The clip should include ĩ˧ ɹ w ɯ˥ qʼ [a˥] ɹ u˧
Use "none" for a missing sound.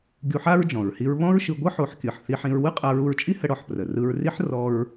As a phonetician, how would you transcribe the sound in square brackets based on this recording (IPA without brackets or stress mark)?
a˧